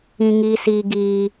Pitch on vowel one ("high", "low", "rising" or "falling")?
high